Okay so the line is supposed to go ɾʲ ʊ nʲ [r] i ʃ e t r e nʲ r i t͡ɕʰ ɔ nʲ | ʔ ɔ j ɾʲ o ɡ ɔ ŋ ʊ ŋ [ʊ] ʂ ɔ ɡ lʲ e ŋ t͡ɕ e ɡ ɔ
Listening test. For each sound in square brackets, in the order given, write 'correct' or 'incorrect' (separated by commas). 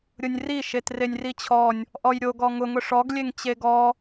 correct, correct